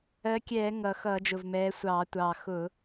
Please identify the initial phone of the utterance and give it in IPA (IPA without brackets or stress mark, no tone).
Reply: ɜ